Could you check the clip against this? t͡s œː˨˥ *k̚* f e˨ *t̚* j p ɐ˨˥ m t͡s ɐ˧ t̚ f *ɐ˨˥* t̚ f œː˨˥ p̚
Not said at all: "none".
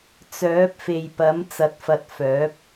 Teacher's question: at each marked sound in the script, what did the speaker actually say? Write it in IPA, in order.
p̚, none, ɐ˧

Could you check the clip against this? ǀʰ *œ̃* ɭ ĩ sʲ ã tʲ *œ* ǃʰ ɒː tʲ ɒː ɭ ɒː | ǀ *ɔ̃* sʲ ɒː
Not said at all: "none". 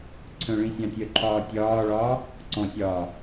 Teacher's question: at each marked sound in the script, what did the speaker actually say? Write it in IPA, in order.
œ̃, œ, ɔ̃

